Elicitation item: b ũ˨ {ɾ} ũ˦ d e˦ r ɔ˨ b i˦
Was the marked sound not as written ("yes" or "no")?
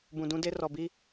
yes